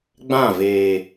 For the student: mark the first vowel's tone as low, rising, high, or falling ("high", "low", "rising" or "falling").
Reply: falling